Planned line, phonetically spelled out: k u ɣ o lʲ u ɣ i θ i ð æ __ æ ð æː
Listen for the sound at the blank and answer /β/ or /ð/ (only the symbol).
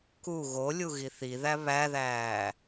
β